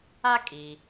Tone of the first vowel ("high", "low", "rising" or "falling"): high